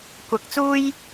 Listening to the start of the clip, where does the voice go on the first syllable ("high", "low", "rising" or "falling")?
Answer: rising